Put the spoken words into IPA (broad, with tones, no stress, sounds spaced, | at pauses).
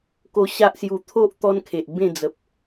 k o˧ ɕ a˦ ʔ s j u˨˩ t̪ʰ o˦ ʔ t̪ ɔ˦ n kʰ e˨ ʔ b ẽ˥˧ d͡z ə˨ p̚